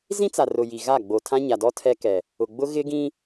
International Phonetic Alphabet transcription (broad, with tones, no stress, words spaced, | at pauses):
zĩ˦t͡sa˨rʊ˨ ji˨ɣa˦˨ ɡ͡bo˨ tʰã˦ɲa˨dɔ˦ tʰɛ˦kɛ˨ | ʊ˨ɡ͡bʊ˦ ɣɪ˦ɡĩ˦